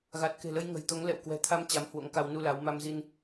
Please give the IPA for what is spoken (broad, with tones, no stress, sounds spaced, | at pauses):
ɣ a˨˩ t̚ k e̤˨˩ l ə˧ j ŋ ə̤˨˩ j t̪ o˨˦ ŋ l ɛ̰˧˨ w k w ɛ̤˨˩ t̪ʰ a˧ m t͡ɕ a˨˦ m h w o̰˧˥ ŋ k a˧ w n u˧ l a˨˦ w m a˧ m z i˧ n